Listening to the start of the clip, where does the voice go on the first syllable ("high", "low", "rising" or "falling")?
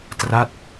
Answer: falling